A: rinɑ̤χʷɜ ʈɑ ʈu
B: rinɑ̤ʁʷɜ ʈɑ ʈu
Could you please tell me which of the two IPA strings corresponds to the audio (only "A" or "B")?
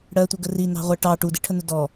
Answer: B